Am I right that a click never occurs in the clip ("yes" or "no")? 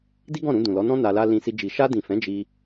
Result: yes